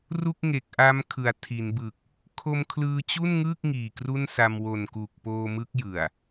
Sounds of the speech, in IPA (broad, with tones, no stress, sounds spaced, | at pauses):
r u˥˩ k̚ ŋ e˨˩ k̚ ʔ a˦˥ m kʰ ɯ˩˦ a̯ tʰ i˩˦ n b ɯ˨˩ k̚ | kʰ o˧ m kʰ l ɯː˧ t͡ɕ u˥˩ n ŋ ɯː˥˩ k̚ ŋ iː˨˩ k r u˥˩ n s a˧ m w o˨˩ n k u˨˩ k̚ p oː˧ m ɯ˦˥ k̚ j ɯ˨˩ a̯